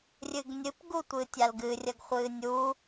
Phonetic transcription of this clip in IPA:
rʲɨɡnʲɨp ɡutʷɨːtʲalɡɨ rʲɐɡχʷɨːnʲu

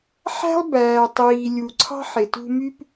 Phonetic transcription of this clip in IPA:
ħæ̤˥lˠbæː˨ tˤiː˨lʲu˨ǀʰɑ̤˥ħ e˨tṳ˦my˥p

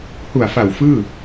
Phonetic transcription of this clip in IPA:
hu˨˩a̯fa˨˩w fɯː˥˩

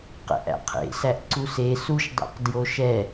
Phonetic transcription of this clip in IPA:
qɛ̰ʔæ̰qʰḛ sæʔǀuse suʃdˤɛ̰q djoʃɛ

